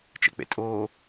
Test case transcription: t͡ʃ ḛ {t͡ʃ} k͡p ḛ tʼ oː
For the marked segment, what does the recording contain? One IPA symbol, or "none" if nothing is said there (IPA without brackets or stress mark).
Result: none